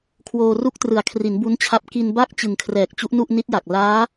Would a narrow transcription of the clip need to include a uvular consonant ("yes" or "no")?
no